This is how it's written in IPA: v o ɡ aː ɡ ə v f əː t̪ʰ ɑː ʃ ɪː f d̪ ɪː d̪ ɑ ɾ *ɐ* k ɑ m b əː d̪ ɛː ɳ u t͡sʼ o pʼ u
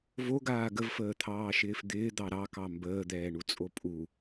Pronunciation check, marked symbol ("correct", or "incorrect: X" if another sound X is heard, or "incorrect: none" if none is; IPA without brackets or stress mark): incorrect: ɑ